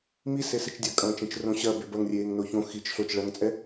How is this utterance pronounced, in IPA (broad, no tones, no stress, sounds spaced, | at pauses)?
m i s e s ɪ t͡ʃ dʲ ɐ kʼ ɐ̃ː t͡ʃ ẽ t͡ʃ r õ ɕ ɐ b e b ɐ ŋ rʲ eː ŋ n o ç õ x i t͡ʃ ɬ o t͡ʃ ɭ ɐ ŋ t͡sʼ ɛ